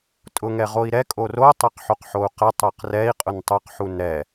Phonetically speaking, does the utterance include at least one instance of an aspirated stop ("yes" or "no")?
no